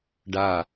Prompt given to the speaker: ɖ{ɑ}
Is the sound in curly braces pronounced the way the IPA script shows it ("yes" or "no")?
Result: no